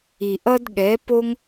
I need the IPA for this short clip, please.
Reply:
i˨ ʔ ʌ˦ d ɠ ɛ˨˦ p o˦ ŋ

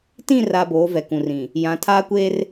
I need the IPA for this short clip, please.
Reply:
t ĩ˦˨ r a˨ b oː˨˦ v ɛ˨ k ũ˨ r ĩ˨ | j ã˨˦ tʰ aː˦ kʷ eː˦ r

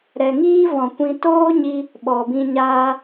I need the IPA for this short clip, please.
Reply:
ɾ ɛ˨ ŋ iː˦ v ɔ̃˨ kʷ ĩ˧ t oː˦ ɲ i˧ | ɓ ɔ˨ b ĩ˧ ɲ aː˧

